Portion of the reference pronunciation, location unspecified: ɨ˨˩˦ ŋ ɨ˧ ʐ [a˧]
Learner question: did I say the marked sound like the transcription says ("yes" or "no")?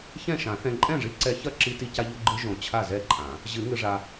yes